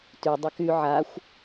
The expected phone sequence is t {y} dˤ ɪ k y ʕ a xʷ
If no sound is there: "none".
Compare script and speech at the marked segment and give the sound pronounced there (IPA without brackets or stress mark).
y